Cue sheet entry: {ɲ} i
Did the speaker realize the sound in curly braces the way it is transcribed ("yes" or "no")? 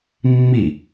no